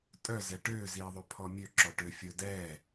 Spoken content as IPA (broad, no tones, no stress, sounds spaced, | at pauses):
tʼ œ z ɛ ʈ øː z iː ðˤ ø pʰ ɔ mʲ ø ǁ ɔ ʈ ø fʲ ɵ d ɛː